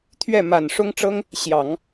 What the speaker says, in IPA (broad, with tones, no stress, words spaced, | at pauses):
t̪ʰɥɛ˥˩ ma˨˩n ʂʊ˥ŋʈ͡ʂɤ˥ŋ | ɕjɑ˨˩˦ŋ